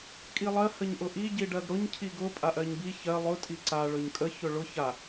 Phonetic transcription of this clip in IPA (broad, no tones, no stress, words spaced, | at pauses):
kʼilˠɜ həɲʔʊʔi ɟiɖɜɡɽʊɲ cʰiɡʊ pʼaʔɜɲbi çɜ lˠʊ tʼiǀa ɭɵɲkʼə çɵɭʊ ça